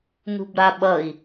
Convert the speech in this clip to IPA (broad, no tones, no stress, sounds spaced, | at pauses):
n ṳ b ɾ a ɓ ʌ i̯